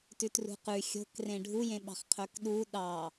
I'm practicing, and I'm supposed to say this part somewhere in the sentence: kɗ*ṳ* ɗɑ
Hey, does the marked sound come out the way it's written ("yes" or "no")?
no